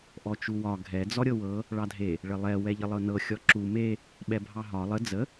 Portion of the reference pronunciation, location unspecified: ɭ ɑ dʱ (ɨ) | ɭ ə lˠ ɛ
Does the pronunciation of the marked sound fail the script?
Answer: yes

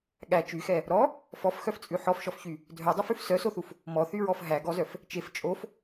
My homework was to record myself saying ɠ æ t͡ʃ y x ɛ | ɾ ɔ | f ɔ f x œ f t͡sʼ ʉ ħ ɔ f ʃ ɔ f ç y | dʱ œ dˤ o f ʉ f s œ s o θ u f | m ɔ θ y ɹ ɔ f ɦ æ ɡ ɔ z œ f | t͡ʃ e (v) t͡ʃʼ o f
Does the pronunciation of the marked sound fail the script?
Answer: yes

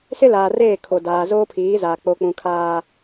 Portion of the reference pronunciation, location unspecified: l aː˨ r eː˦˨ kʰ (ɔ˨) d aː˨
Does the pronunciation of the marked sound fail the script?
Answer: yes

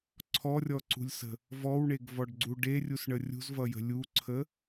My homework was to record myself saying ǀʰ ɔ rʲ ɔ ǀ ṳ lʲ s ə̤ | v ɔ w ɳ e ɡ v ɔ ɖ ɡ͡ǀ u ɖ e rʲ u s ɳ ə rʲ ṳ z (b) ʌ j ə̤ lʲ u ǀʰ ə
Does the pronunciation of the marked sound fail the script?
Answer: yes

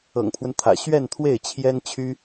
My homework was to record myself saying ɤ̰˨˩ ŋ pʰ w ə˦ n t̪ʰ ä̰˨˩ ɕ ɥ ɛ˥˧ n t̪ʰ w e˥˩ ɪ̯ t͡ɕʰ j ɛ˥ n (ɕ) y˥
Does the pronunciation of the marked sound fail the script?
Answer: yes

